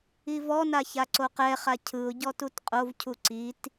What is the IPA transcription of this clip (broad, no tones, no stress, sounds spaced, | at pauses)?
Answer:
i v ɔ n a ç a ǀ o q ɛ χ a cʰ ɯ ʊ̯ ɟ ɔ t u t qʼ o v cʰ u ǀ i t